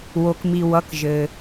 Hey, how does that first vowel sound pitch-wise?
low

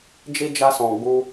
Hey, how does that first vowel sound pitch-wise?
high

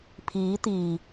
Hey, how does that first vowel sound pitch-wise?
rising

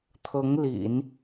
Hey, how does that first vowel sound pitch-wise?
rising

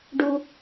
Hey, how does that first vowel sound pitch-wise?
high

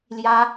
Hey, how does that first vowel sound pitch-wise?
high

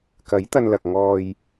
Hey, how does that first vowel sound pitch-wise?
rising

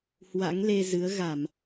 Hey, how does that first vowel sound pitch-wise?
rising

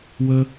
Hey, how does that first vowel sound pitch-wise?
high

